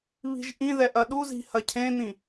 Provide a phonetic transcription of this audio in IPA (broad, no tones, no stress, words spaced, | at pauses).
βi̤ʒʔĩðɛ ʔɐɗuzi̤ hɐcʰẽn̪ĩ